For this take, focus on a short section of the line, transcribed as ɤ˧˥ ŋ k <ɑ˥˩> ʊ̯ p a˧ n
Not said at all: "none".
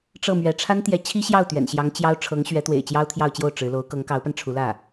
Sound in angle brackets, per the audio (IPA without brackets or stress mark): ɑ˧˥